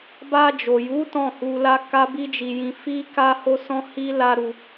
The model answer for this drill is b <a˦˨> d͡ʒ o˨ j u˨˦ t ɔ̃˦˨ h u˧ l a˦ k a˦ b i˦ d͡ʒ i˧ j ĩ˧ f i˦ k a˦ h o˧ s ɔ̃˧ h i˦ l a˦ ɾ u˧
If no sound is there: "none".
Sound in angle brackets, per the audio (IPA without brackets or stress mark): a˧